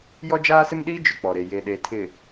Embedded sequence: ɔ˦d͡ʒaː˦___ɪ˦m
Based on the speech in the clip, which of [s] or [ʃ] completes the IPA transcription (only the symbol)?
s